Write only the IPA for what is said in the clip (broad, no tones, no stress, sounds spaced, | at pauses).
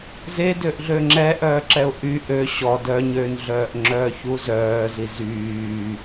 z e d ø ʔ ɮ ø ŋ͡ǁ ɛ ʔ œː ǁ ɛ ʊ̯ ʔ y ʔ ø ɕ ɔ d œ ɲ ø n ɮ œː ʔ ŋ͡ǁ œː ç u z œː z i z yː